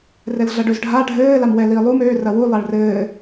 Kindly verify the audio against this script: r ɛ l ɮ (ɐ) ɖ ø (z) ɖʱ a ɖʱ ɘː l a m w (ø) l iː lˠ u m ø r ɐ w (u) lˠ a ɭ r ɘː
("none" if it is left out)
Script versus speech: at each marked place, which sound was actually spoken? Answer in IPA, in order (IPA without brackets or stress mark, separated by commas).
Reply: ɐ, z, ɛ, u